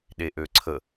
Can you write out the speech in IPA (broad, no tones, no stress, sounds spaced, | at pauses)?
ɗ e ʔ ø ǀʰ ə